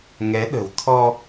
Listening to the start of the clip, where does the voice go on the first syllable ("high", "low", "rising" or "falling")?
rising